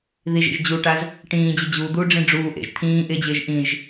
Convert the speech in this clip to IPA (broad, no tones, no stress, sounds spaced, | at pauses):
ð i ʒ ḛ ʒ d͡ʑ u ʈ a z | ʈ ĩː d͡ʑ ɪ d͡ʑ u d̪ uː ɖ͡ʐ ĩ ɖ͡ʐ uː ʔ ḛ ʒ t̪ʰ ĩː ʔ ɪː d͡ʑ ɪː ʒ ʔ ĩ ʒ